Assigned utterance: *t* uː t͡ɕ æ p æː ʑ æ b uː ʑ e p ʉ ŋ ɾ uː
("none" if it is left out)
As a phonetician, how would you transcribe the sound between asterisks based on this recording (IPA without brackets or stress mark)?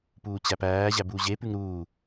p